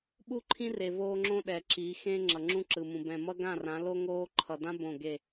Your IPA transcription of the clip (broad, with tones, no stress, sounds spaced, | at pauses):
ɓ u˦˨ ǃʰ ĩ˦ r e˨ v oː˦ ŋ͡ǁ õ˦ ɗ ɛ˨ ǁ i˨˦ x ẽ˦ ŋ͡ǁ ʌ˨ ŋ͡ǁ ũ˦ ǁ ɯ˨ m ũ˨ b ɛ̃˨ m ʌ˦ ɡ ã˦˨ r ã˨˦ l o˦ ŋ oː˦ ǃʰ ʌ˨ d ã˦ b õ˦˨ ɡ e˦˨